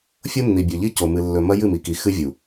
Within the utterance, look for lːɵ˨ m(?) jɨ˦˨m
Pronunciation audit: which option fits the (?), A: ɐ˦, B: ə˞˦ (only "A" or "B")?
A